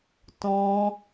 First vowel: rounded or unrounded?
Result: rounded